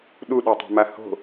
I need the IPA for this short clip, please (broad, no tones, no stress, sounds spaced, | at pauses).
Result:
ɗ u ɗ ø tˤ a̤ m a h o̤